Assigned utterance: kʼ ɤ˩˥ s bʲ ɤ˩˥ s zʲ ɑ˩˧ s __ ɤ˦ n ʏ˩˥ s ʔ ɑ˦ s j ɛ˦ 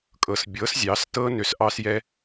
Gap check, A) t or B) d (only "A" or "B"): A